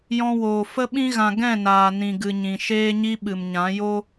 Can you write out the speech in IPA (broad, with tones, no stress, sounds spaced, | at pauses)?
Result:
j ɔ̃˧ w oː˨ f ə˧ ɓ ĩ˧ ɣ ã˨ ɡ ɛ̃˦˨ n aː˨ n ĩ˨ ɡ ɨ˨ ɲ ĩ˨ ʃ eː˧ ɲ i˧ ɓ ɨ˨ m ɲ ã˨˦ j o˦